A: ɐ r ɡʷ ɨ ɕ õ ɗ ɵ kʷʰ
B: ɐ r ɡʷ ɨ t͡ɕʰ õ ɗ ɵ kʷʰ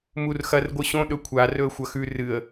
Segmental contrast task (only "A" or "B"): A